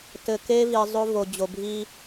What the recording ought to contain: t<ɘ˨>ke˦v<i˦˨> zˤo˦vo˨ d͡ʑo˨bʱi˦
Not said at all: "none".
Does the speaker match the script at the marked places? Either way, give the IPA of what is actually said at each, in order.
ɘ˨, i˨

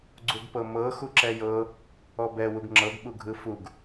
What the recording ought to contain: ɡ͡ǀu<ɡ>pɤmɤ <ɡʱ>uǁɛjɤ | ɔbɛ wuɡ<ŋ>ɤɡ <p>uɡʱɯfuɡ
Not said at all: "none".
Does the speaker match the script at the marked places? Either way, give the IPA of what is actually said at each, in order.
ɡ, x, ŋ͡ǁ, ɓ

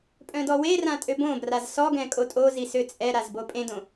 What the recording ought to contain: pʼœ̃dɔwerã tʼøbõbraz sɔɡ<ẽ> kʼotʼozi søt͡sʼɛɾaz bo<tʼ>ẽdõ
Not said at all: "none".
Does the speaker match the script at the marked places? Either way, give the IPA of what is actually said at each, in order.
ɛ̃, pʼ

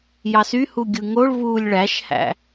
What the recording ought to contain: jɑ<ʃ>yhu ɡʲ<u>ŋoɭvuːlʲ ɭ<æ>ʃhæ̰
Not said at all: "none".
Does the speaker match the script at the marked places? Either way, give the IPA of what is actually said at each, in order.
s, ɯ, æ

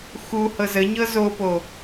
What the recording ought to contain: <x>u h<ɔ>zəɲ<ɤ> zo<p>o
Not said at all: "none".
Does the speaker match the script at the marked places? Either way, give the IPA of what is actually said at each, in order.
x, ɤ, ɤ, p

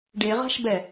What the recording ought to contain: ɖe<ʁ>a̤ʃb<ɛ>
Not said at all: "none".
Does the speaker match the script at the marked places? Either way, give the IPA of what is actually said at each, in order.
ʁ, ɛ

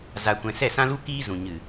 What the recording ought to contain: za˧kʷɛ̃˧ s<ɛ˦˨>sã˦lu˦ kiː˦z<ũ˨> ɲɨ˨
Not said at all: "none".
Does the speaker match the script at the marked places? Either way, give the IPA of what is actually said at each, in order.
ɛ˦˨, ũ˨

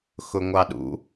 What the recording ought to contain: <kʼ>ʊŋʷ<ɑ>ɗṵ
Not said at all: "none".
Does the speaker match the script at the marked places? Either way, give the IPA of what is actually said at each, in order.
x, ɑ

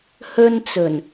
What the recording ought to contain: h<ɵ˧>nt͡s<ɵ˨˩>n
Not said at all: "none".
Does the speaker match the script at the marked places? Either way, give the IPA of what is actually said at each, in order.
ɵ˧, ɵ˨˩

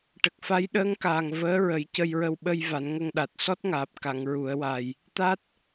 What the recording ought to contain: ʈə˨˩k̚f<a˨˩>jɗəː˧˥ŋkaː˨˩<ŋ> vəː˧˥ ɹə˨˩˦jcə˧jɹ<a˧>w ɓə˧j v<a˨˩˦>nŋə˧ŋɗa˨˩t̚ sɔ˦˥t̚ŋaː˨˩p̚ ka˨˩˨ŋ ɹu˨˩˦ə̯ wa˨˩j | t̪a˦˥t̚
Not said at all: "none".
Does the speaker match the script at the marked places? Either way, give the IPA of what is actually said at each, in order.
a˧˥, ŋ, ə˧, a˨˩˦

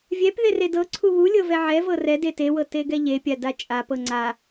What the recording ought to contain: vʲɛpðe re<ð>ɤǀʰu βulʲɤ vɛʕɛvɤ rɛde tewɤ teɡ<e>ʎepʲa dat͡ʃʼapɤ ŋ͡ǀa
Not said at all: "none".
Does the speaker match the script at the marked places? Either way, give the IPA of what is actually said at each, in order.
d, ɛ

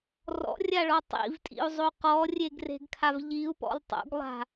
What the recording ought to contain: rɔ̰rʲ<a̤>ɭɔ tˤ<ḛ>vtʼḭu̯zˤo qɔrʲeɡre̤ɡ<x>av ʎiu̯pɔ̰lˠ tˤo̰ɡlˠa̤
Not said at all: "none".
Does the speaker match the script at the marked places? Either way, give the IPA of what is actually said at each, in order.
a, ḭ, kʰ

